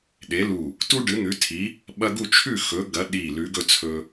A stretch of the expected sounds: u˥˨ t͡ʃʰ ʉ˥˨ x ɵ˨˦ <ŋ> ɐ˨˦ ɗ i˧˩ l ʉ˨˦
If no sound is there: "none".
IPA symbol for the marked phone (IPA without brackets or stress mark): ɡ